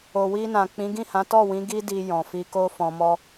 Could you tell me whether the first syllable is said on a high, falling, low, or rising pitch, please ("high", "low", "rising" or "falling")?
low